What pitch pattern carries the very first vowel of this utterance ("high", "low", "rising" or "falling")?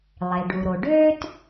low